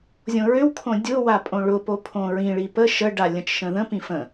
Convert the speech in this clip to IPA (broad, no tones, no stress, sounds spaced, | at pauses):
zʲ õ ɹ ʏ w kʰ õ dʲ ʊ w a pʼ õ ɭ ʊ p o pʰ õ ɹ ĩ ɭ i p ə ʃ ə ɖ a lʲ ə̃ t͡ʃ ʃ ə̃ ð ə̃ p ĩ f ə̃